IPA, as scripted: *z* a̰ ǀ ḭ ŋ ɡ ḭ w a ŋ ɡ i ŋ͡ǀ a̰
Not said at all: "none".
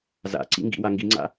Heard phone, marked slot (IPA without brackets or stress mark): z